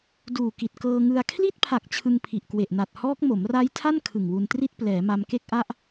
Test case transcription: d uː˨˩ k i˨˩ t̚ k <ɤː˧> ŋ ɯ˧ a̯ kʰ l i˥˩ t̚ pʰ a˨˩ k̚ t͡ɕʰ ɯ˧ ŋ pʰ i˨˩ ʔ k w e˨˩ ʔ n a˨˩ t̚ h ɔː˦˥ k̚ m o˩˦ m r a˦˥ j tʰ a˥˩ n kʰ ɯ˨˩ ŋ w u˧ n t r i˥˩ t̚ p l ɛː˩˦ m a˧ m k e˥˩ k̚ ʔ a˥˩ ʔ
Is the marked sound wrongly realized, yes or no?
no